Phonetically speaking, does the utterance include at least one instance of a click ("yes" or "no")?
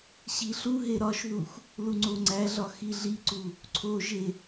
yes